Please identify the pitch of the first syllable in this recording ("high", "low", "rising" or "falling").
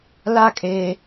falling